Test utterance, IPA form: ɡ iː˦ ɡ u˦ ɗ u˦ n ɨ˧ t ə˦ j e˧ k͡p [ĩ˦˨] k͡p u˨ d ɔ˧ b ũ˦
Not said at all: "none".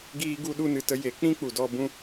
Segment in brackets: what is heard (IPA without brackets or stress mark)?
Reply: ĩ˦